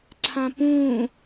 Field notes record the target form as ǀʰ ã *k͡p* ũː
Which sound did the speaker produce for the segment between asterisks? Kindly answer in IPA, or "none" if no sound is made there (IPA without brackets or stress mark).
p